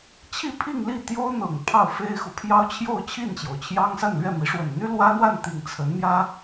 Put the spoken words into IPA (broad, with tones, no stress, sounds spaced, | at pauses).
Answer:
t͡ɕʰ i˥˧ pʰ i˥˧ ŋ l i˥˩ t̪ j o˥ ʊ̯ n̪ ɤ˨˩ ŋ pʰ ɑ˥˩ ʊ̯ f e˥ ɪ̯ x u˨ pʰ j ɑ˥ ʊ̯ t͡ɕʰ j o˥˧ ʊ̯ t͡ɕʰ i˥˩ n t͡ɕ j o˩ ʊ̯ t͡ɕʰ j ɑ˥ ŋ s a˥˧ n l ɥ ɛ˥˩ m i˧˥ ʂ w ə˨˩ n n̪ y˥ l w ä˥ n̪ w a˥˧ n t̪ i˥˩ ŋ t͡sʰ ə˧˥ n m j ä˥